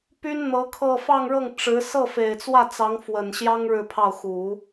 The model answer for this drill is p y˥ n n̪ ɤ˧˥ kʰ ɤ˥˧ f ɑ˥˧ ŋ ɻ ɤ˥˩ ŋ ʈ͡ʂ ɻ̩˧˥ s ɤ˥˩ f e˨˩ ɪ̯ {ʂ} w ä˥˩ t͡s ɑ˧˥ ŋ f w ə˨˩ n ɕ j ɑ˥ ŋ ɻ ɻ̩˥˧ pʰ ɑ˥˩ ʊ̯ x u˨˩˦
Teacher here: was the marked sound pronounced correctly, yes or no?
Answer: no